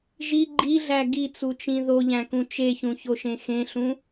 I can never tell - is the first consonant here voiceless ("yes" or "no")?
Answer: no